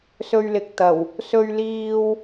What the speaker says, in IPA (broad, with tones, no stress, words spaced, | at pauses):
sɵ˧ɥlɪ˨˥k̚t̪ɐ˨˩w | sɵ˧ɥliː˧w